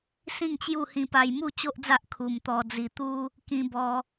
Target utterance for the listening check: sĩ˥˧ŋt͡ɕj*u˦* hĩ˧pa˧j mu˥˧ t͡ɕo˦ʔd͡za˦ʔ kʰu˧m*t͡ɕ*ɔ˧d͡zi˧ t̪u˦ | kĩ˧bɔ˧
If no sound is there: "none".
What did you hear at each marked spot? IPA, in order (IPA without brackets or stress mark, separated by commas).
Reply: u˥˧, t̪